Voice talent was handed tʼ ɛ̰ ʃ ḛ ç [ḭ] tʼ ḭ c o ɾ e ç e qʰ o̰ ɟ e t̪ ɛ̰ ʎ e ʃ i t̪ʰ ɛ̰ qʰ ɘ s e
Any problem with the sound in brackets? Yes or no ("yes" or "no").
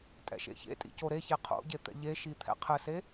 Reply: yes